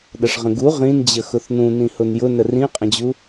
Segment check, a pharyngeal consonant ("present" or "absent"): absent